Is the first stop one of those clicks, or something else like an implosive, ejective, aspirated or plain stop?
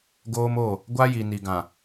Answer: plain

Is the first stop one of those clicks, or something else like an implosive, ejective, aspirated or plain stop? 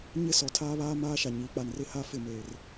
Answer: aspirated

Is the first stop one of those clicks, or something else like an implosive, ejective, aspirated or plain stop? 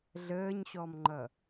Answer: click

